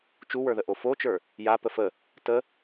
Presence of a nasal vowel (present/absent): absent